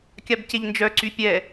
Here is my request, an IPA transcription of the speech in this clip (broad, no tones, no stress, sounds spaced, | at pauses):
kʲ a b c e ʎ n d͡ʒ œ ǀ y pʲ ɛ